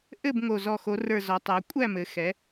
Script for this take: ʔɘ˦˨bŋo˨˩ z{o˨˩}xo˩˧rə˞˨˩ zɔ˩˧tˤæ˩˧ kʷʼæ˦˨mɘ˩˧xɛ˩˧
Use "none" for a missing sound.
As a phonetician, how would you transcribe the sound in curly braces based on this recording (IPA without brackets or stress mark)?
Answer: ɔ˨˩